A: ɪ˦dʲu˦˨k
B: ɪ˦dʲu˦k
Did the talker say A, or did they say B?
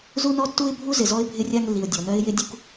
B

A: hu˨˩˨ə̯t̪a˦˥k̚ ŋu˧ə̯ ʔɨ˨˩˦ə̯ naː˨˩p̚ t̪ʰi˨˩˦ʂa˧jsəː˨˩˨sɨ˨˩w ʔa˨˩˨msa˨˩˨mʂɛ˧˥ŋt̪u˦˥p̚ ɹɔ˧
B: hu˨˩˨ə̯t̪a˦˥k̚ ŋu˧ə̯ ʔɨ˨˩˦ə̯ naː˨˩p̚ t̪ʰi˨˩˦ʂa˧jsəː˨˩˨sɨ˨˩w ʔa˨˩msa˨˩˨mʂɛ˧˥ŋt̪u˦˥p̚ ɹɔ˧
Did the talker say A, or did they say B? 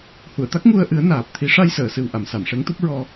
A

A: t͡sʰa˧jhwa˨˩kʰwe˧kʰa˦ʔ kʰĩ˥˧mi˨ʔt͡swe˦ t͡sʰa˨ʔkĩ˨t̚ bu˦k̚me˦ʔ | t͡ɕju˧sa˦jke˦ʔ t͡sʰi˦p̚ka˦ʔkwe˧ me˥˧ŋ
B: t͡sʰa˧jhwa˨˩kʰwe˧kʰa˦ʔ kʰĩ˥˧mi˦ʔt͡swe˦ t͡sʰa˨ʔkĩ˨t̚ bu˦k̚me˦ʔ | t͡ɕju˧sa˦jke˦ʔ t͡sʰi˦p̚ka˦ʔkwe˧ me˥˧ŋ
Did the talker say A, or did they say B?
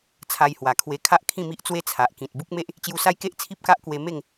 B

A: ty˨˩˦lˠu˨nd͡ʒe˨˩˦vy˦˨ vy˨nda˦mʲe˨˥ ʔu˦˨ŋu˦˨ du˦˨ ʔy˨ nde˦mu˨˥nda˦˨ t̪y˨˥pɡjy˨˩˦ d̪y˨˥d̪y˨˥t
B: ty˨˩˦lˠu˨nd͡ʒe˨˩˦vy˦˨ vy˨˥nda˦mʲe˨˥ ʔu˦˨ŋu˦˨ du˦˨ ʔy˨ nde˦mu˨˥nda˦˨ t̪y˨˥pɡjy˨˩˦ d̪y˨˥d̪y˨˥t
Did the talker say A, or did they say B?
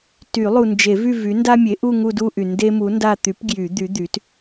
B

